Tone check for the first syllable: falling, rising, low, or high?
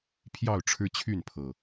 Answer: falling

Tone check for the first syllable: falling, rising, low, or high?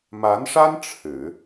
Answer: rising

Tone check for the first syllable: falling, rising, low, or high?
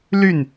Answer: falling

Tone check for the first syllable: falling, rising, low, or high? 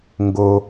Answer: high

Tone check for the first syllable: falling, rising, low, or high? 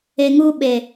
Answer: low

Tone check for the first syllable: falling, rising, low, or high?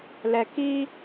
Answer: low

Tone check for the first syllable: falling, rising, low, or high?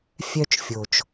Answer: high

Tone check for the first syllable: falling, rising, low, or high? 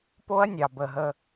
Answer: high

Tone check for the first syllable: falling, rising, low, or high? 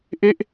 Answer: falling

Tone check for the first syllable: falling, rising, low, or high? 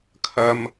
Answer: low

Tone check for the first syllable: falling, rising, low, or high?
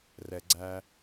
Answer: low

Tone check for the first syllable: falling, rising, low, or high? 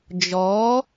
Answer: rising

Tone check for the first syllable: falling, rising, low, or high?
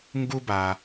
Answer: high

